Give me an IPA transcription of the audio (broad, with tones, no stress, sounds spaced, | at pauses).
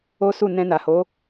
o˦ s u˦˨ n ɛ̃˧ n a˨ h o˨˦